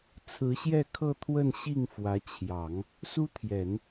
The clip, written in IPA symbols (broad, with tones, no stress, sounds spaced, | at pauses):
t͡sʰ ɹ̩˧˥ ɕ j ɛ˥˧ kʰ ɤ˥˧ t̪ʰ w ə˥˧ n ɕ i˥˩ ŋ f w ä˧˥ t͡ɕʰ j ɑ˨˩˦ ŋ | s u˥ t̪ʰ j ɛ˨˩˦ n